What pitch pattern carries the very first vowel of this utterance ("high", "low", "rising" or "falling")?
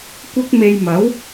high